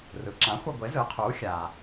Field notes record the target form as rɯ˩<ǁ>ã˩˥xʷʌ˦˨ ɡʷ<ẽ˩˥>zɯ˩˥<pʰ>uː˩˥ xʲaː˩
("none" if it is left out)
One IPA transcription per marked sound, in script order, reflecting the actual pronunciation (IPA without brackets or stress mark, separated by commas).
ǁ, e˩˥, qʰ